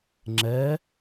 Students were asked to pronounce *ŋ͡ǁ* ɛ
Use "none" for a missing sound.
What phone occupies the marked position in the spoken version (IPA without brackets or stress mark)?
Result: ŋ͡ǁ